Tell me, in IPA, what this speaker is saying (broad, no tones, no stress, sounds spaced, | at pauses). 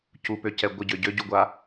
c u p ø c ɛ ɡʷ ə ɟ ø ɟ ø ɟ u ɡʷ a